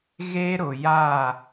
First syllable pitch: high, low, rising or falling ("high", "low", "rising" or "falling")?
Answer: high